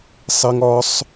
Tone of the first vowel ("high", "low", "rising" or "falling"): high